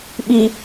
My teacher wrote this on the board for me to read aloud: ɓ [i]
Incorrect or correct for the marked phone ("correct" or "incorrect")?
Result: correct